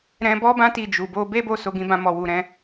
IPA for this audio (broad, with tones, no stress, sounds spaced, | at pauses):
ɾ ɛ̃˧ b ɔ˦ b ã˦ t i˦˨ d͡ʒ u˨ b o˧ b e˦ b o˦˨ s o˧ ɡ ĩ˧ b ã˧ m ɔ˨ w u˨ ɾ ɛ̃˧